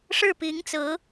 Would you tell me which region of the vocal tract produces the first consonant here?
retroflex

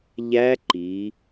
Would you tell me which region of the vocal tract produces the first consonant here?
palate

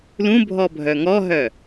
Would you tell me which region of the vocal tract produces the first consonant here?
tongue tip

